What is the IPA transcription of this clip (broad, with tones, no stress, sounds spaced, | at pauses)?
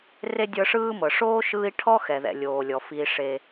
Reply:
r e˥ dʲ ɤ˦ ʂ ɯː˥ m ɤ˩ ʂ oː˥ ʃ ɯː˦ i̯ ʈʰ ɔ˥ x ɛ˩ ð ɛ̰˩ lʲ oː˩ lʲ ɔ˩ f iː˨ ʂ e˨